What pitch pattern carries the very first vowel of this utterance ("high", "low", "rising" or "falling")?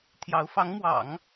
rising